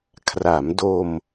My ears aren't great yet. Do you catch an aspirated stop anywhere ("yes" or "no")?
yes